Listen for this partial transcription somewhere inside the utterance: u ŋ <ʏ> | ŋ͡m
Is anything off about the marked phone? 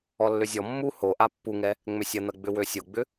yes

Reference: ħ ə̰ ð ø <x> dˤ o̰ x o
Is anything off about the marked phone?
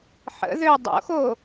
yes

